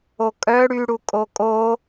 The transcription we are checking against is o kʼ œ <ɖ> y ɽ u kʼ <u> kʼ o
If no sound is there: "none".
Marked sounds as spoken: ɽ, o

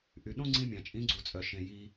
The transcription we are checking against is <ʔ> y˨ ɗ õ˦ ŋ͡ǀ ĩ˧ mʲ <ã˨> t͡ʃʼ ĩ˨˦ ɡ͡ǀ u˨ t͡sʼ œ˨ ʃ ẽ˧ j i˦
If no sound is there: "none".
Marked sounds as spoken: ʔ, ã˨

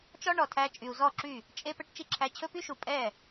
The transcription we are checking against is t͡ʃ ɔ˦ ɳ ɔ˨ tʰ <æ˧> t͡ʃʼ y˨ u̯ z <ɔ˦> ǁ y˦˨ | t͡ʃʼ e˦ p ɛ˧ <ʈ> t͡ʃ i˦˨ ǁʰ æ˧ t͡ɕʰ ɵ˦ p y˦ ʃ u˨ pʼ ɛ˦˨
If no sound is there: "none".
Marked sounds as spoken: æ˧, ɔ˦˨, ʈ

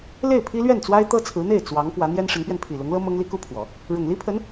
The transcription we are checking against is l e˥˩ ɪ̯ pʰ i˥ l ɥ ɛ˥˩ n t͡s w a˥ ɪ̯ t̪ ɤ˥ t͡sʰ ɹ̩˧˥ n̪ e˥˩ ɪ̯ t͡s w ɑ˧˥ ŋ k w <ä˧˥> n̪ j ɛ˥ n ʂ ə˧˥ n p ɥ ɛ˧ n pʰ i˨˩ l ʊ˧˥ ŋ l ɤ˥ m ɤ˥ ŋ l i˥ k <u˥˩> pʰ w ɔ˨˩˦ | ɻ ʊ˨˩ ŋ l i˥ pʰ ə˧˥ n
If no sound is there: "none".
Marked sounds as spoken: ä˧˥, u˥

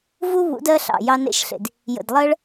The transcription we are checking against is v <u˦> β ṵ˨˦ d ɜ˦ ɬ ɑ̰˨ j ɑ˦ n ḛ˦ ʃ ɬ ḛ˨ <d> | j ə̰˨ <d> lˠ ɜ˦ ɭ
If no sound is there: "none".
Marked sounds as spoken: u˦, d, d

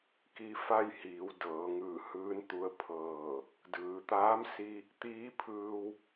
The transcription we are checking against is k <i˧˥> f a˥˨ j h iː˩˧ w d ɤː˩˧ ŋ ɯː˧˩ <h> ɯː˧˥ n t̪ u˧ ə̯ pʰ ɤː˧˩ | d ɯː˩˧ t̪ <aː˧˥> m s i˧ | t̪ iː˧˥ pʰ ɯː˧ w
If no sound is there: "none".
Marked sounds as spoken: i˧, h, aː˧˥

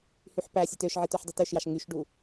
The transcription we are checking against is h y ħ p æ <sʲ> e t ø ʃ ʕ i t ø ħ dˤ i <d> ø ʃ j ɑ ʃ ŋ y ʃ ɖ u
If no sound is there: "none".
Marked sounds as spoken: sʲ, t

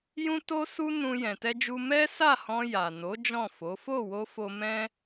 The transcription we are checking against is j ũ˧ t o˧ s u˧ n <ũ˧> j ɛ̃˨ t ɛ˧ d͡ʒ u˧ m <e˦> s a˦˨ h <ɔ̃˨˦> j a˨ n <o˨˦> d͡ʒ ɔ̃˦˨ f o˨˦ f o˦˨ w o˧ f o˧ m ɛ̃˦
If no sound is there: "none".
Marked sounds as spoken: ũ˧, ɛ˦, ɔ̃˧, o˨˦

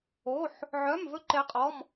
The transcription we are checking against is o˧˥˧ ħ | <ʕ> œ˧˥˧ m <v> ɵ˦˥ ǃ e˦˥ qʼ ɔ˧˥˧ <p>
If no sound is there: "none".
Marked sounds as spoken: ʕ, v, m

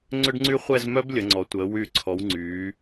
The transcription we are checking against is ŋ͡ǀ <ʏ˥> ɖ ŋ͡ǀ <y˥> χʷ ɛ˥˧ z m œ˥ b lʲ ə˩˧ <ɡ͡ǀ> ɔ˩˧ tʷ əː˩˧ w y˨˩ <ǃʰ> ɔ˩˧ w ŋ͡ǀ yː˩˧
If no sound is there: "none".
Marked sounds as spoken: ʏ˥, y˥, ŋ͡ǀ, ǀʰ

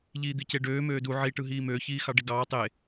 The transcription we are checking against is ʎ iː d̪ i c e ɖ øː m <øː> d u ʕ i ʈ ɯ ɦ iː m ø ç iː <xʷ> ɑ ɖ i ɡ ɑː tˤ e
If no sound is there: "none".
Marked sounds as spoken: øː, x

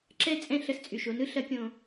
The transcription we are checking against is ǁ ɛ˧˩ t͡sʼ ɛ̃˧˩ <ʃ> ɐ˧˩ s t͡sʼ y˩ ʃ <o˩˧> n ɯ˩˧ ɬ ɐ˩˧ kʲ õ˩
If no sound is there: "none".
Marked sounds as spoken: ɬ, o˩˧

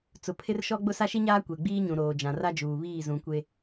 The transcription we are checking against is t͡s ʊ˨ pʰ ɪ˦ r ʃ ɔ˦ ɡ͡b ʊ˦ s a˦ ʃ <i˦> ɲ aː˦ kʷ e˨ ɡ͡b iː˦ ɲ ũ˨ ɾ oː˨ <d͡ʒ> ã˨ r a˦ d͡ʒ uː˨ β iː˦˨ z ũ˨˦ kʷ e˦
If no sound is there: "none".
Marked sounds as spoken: i˦, d͡ʒ

